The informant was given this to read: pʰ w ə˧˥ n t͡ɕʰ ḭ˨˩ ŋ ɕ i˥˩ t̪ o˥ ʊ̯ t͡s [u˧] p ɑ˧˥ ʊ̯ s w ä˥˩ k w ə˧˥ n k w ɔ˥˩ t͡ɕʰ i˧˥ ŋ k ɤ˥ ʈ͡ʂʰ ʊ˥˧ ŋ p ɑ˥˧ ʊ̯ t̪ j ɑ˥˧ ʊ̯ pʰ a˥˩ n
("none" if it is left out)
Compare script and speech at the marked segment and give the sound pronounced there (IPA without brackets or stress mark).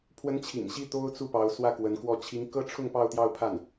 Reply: u˥˩